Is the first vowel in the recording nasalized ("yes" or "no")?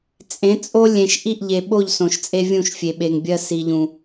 yes